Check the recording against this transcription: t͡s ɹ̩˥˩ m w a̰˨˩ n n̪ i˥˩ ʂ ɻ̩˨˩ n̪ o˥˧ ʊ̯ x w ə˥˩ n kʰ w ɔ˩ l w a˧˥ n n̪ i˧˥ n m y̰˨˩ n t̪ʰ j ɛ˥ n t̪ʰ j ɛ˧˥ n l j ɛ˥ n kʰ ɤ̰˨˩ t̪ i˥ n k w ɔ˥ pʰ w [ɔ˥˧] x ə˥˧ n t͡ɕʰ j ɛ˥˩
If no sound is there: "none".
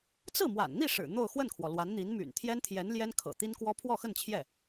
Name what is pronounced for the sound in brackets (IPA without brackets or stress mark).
ɔ˥˧